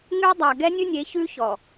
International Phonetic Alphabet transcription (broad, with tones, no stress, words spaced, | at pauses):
ŋʉ˦dˤa˨ ɡɛ˦ nʲʉ˦nʲe˨˦çʉ˦ çɔ˨